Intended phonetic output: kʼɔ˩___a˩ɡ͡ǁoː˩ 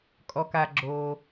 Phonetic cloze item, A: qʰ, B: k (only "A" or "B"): B